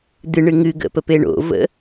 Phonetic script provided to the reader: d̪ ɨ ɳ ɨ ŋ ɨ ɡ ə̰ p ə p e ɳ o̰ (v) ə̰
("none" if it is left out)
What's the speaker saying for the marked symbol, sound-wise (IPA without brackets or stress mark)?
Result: v